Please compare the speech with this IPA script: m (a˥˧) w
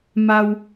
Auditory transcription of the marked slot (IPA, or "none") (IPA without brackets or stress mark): a˧